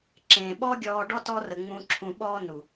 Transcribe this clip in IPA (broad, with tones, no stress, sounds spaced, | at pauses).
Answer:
ǁ ẽː˨ ɓ ɔ˦ ɡʲ ɔː˧ ɖ ɔ˦ t ɔ˧ r ə˨ ŋ͡m ũ˧ ǁʰ ũ˧ ɓ ɔː˦ n u˨